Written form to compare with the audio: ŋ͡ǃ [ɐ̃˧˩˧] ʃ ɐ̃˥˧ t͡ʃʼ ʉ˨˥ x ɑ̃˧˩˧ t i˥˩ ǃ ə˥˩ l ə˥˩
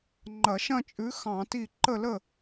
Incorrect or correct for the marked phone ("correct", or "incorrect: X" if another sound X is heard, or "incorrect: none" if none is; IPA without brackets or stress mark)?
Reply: incorrect: ɐ˧˩˧